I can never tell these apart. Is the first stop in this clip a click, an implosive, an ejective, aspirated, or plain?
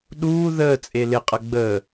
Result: implosive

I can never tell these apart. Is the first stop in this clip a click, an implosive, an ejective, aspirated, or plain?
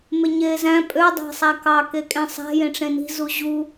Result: ejective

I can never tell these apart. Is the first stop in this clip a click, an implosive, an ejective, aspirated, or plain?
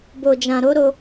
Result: plain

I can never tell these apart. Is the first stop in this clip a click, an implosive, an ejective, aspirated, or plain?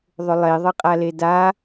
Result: ejective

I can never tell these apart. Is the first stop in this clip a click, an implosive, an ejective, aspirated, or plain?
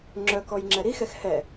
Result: click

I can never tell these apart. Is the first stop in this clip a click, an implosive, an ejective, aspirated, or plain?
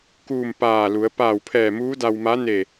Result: plain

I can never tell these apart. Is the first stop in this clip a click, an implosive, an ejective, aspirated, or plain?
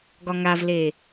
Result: plain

